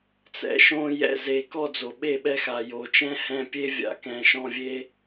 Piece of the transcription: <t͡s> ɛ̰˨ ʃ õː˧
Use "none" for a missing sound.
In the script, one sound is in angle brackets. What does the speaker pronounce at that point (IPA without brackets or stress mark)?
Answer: t͡s